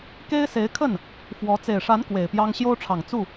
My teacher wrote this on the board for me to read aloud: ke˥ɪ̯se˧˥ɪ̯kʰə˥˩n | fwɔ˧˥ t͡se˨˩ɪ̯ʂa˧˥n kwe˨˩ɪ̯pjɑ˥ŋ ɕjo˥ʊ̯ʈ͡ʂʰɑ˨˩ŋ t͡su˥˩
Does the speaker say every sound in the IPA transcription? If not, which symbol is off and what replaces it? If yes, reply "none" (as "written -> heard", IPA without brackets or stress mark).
none